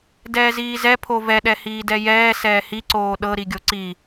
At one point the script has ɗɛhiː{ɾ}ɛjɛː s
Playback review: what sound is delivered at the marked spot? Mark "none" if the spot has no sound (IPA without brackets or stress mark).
d